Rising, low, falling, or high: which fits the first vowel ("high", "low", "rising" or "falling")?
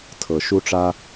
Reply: low